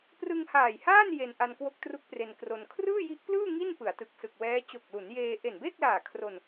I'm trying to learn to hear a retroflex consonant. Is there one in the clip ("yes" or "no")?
no